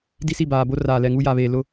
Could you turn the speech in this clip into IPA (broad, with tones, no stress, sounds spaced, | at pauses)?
d i˦ s i˦˨ b aː˨ b o˦ r aː˨ l ɛ˨ ŋ u˦ j a˨ β eː˨ l ʊ˦